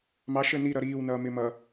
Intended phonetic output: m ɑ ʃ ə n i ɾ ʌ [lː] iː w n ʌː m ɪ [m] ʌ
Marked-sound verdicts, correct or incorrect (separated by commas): incorrect, correct